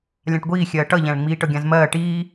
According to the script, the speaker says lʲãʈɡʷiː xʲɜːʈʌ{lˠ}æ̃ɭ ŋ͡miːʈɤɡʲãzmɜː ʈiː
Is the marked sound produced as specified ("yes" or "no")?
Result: no